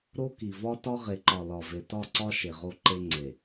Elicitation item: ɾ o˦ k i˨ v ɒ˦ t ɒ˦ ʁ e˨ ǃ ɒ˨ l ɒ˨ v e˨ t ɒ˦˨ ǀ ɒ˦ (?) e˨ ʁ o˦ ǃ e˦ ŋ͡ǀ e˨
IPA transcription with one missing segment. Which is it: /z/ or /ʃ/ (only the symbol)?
ʃ